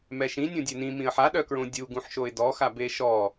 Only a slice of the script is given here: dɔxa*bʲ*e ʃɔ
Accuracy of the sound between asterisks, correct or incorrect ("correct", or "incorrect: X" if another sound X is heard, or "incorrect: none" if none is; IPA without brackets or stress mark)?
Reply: incorrect: b